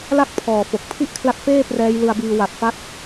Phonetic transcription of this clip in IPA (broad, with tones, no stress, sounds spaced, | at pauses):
l a˥˩ k̚ pʰ ɔː˨˩ f o˨˩ k̚ pʰ i˥˩ ʔ kʰ l a˦˥ k̚ f eː˥˩ p r ɛː˦˥ j l ɯ˧ a̯ b iː˧ w a˨˩ t̚ f a˦˥ t̚